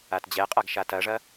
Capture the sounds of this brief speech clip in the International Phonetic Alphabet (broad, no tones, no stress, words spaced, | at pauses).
atd͡ʑɛqʼaɡ ʃatɐʐɐ